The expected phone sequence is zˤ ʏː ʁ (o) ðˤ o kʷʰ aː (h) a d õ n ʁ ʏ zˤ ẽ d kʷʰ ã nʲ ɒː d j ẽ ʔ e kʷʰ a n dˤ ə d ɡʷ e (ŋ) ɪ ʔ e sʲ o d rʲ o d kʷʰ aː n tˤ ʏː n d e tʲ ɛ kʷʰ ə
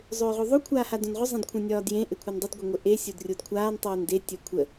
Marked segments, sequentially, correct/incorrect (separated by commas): correct, correct, incorrect